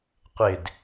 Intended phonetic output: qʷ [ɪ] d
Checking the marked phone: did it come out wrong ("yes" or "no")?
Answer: no